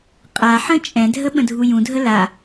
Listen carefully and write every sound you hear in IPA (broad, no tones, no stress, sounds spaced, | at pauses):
qʼ a ħ ə̃ t͡ʃʼ ɛ̃ dʱ ə ɓ ə̃ dʱ u j ũ dʱ ə l a